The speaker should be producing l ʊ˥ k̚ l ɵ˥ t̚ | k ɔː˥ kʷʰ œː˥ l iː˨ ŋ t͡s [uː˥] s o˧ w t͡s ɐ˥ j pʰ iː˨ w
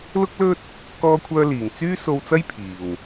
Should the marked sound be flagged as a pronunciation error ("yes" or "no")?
yes